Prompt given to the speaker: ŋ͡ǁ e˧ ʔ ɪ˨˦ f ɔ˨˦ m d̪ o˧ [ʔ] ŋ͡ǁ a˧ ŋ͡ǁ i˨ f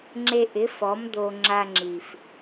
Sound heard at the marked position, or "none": none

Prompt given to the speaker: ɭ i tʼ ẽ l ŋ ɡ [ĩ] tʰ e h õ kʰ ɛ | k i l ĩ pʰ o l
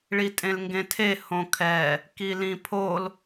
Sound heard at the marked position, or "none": ẽ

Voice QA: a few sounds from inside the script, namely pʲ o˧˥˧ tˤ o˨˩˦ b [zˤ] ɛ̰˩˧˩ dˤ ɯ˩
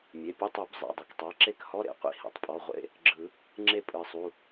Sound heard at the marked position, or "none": zˤ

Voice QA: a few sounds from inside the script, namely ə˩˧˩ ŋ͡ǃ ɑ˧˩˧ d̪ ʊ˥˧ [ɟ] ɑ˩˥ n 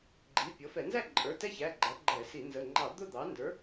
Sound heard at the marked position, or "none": d̪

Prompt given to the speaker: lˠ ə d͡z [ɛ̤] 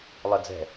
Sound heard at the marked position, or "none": ɛ̤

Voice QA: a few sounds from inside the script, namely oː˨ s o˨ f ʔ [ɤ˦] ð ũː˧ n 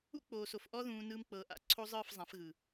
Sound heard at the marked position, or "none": ɔ˦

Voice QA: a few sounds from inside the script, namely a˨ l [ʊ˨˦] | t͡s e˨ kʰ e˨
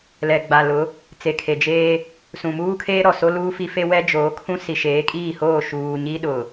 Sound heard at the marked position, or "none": ʊ˨˦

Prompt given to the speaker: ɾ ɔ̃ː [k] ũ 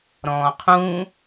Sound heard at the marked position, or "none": qʰ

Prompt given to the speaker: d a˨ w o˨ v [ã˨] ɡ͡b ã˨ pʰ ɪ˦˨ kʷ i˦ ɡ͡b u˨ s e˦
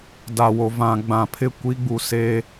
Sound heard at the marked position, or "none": ã˨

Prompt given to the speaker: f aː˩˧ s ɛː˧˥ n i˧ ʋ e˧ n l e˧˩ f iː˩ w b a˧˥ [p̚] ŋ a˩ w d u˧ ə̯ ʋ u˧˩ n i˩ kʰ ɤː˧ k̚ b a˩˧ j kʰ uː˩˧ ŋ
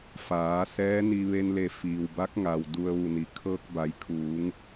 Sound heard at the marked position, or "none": k̚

